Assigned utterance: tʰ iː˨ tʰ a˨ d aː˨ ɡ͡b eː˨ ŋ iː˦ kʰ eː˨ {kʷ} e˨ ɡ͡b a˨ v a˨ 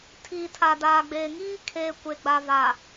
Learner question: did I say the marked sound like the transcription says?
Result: yes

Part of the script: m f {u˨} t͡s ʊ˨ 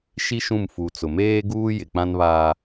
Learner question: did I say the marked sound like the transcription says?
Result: yes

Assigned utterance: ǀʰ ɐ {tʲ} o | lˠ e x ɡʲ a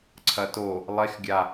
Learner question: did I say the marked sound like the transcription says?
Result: no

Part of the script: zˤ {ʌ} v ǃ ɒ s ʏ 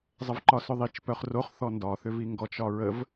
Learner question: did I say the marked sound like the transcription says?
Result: no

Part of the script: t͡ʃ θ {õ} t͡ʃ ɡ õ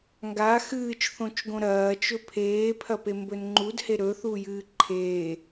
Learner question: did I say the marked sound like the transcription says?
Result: yes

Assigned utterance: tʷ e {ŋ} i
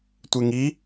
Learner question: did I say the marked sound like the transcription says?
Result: yes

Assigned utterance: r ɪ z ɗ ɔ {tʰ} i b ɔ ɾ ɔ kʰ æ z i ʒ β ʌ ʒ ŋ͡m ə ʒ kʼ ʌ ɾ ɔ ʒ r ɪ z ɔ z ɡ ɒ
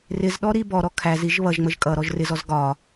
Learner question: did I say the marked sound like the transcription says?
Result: no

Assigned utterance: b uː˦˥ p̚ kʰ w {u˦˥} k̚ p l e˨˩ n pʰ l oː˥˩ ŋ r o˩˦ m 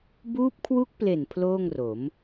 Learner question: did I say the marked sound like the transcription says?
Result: yes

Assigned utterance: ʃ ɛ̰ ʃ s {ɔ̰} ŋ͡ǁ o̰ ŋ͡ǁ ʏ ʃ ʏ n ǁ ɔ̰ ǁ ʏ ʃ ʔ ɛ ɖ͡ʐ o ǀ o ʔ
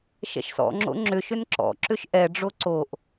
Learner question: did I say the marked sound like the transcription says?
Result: yes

